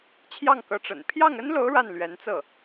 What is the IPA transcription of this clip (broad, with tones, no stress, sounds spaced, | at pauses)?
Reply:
t͡ɕʰ j ɑ˥˩ ŋ k ɤ˧˥ ʈ͡ʂ ə̰˨˩ n pʰ j ɑ˥˩ ŋ ə˥ n l o˧˥ ʊ̯ ɻ a˥˩ n l ɥ ɛ˧˥ n t͡s ɤ˥˩